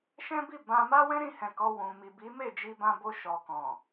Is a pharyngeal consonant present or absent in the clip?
absent